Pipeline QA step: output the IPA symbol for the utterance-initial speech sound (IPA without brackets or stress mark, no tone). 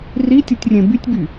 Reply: r